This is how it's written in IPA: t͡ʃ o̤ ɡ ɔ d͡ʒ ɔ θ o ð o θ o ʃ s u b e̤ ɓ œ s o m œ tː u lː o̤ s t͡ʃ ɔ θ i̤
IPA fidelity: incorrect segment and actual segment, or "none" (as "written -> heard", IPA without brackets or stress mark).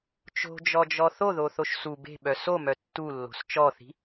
ɡ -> d͡ʒ